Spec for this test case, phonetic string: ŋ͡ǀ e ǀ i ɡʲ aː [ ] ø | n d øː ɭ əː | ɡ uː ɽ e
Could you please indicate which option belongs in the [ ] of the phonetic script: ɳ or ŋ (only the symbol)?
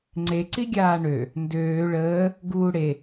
ɳ